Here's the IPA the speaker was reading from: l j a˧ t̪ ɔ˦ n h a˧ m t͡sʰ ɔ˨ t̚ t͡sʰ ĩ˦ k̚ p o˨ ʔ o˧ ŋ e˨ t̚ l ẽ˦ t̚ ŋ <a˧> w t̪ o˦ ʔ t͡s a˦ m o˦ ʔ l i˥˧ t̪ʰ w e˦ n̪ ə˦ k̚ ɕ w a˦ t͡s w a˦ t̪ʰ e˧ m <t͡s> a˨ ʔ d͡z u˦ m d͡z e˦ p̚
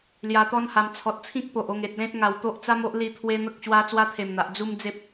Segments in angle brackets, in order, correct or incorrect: correct, incorrect: n̪

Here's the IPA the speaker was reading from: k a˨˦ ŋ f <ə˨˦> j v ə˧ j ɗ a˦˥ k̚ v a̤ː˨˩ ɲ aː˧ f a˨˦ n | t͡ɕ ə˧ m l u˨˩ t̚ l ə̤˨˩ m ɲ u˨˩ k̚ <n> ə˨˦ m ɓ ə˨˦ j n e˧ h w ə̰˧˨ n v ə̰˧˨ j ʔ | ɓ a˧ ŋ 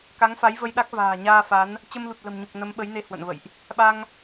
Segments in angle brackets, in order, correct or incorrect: incorrect: a˨˦, correct

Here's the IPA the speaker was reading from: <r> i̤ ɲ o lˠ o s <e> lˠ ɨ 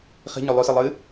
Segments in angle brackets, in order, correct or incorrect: incorrect: χ, incorrect: ɨ

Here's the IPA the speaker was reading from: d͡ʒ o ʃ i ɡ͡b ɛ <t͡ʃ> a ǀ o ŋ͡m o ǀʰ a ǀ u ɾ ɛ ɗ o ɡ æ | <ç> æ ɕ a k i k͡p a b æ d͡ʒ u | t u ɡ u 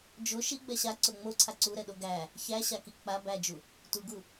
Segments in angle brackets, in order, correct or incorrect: incorrect: ɕ, correct

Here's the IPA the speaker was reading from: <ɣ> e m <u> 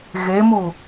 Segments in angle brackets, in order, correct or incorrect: correct, correct

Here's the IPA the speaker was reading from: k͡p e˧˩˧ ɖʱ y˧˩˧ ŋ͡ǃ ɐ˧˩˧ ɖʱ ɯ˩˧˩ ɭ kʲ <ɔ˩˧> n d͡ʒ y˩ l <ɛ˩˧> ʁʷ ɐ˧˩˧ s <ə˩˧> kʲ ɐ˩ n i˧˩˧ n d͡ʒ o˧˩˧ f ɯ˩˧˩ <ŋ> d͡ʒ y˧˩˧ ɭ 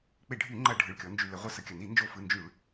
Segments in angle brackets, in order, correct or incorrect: correct, incorrect: ə˩˧, correct, incorrect: n

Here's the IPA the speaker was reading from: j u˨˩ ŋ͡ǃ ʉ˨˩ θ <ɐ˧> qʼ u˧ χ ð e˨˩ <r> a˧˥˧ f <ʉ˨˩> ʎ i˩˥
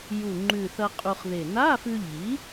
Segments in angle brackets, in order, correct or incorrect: correct, incorrect: n, incorrect: ʉ˧

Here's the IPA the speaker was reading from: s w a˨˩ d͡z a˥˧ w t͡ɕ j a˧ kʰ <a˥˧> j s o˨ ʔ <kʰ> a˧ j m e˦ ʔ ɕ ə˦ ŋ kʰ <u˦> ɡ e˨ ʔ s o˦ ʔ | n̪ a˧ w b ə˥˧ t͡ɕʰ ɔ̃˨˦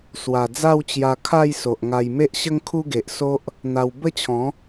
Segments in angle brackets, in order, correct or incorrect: correct, incorrect: ŋ, correct

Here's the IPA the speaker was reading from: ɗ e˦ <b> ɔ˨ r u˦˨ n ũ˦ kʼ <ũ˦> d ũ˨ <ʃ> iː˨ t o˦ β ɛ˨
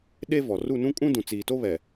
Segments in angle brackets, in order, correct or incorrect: incorrect: v, correct, incorrect: t͡s

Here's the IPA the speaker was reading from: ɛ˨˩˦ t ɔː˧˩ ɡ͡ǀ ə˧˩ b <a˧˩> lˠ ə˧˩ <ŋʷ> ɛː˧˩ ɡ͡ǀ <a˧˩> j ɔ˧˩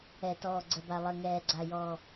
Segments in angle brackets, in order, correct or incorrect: correct, incorrect: ŋ, correct

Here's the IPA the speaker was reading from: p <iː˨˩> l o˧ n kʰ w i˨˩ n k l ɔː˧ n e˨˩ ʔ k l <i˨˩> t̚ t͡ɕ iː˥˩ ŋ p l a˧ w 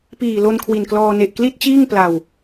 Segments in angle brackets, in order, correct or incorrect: correct, incorrect: i˥˩

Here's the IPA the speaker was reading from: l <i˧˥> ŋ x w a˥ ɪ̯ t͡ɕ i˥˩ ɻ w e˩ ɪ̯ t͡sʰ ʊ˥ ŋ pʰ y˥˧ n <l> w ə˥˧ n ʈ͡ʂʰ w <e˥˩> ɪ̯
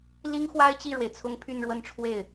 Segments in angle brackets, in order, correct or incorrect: incorrect: i˥, incorrect: ɻ, correct

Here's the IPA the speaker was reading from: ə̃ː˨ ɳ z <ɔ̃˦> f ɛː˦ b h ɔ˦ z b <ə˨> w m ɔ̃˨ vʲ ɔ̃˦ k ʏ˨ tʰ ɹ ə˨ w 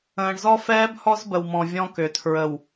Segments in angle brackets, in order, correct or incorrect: incorrect: ɔ˦, correct

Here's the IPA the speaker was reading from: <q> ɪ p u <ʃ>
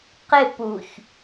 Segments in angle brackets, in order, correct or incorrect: correct, incorrect: ç

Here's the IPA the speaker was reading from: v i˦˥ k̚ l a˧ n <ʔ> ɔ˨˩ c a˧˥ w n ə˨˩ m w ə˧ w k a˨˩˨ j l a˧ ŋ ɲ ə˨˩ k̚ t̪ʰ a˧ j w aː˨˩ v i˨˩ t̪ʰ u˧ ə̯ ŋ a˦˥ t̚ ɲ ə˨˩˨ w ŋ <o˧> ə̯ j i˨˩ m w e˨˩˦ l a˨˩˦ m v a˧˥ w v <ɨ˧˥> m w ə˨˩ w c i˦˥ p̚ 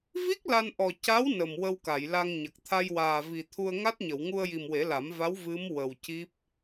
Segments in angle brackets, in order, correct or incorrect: correct, incorrect: u˧, correct

